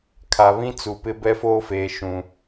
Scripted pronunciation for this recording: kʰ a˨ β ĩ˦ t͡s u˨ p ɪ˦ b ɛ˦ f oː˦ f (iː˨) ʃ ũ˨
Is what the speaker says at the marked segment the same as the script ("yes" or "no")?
no